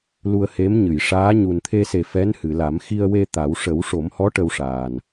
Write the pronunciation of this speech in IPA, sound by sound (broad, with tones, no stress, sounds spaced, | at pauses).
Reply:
l u˧ ə̯ h e˧˥ m ɲ ɨ˨˩˨ j ʂ aː˧˥ ɲ u˨˩ n t̪ʰ e˧ s e˨˩ f ɛ˧˥ n h ɨ˨˩˨ l a˨˩˦ m x i˧ ə̯ w e˧ t̪ a˨˩˦ w ʂ ə˨˩˦ w ʂ o˨˩˦ m h ɔ˧˥ ʈ ə˧ w ʂ aː˨˩ n